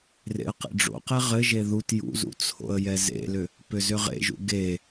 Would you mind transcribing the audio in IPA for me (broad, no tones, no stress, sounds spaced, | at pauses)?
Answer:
r ḛ ə̯ q ḛ ɖ͡ʐ o̰ q ɛ ʁ ɘ ʒ e ð u t j ṵ z ṵ t͡sʰ o̰ ə̯ j ɛ z ḛ l ʏ | p ʏ z ʏ ʁ ḛ ʒ ṵ ɡ e